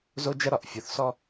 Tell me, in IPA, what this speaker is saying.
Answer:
zo˥d͡ʒɐ˥ ɾɒ˩ʔfʲo˩θsɔ˥

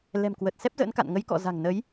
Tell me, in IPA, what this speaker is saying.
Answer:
lɛ̤˨˩m kwə˨˩t̚ sɛ˦˥p̚zə̰ː˧˥nka̰˧˨nŋə˨˦j kɔ̰˧˨ za̤˨˩ŋnə˨˦j

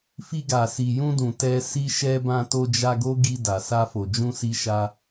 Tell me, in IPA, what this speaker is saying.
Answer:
fi˧ɡa˨ si˨jũ˧dũ˨ tɛ˧ si˧ʃɛ˧ bã˧to˧d͡ʒa˧ɡo˦ ɡi˧da˨sa˧ fo˨d͡ʒũ˧si˧ʃa˧

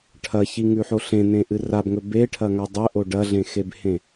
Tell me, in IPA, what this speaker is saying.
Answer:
ʈʰɐçiŋʉħo ɬẽnẽʔɨ rabŋɵ beʈʰɐŋa dˤɵʔo ɖɐɮẽxebhẽ

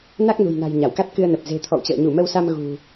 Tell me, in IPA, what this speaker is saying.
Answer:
na˦˥k̚nṳ˨˩jna̤˨˩j ɲa˧˩wka˦˥t̚kɨ˧ə̯nə˨˩p̚ ze̤˨˩ t̪ʰɔ̰˧˨wt͡ɕə̰ː˧˨ ɲu˧˩mə˧wsa˧m ɣṳ˨˩

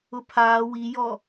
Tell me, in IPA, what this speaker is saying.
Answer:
ʊpʰaː wijɔ

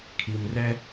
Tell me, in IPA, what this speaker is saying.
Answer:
kʰi˨mrɛ˦

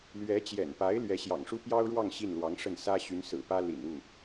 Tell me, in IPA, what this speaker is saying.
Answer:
lɥɛ˧˥t͡ɕjɛ̰˨˩npa˧˥ɪ̯ lɥɛ˧˥ɕjɑ̰˨˩ŋʂu˥ pjɑ˥ʊ̯ɻwɑ˥˧ŋ ɕi˥˩nlwɑ˧˥ŋʂə˥˩n sä˥ ɕy˧˥nsɹ̩˨˩pä˥ lḭ˨˩nu˥˩

